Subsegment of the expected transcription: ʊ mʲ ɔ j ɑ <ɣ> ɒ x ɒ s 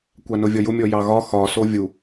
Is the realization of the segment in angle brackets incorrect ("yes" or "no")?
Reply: no